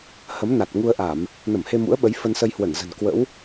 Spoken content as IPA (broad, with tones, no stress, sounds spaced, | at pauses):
h ə˨˦ m n a˨˩ t̚ ŋ u˧ ə̯ ʔ a˧˩˨ m | n ə˧˩ m h e˧ m ṵ˧˥ ə̯ ɓ ə˨˦ j f ə˧ n s ə˧ j h w ə˧˩ n z ə̤˨˩ n k w ə̰˧˥ w